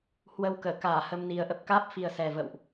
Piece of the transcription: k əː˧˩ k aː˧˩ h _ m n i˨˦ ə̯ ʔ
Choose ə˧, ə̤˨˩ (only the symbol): ə˧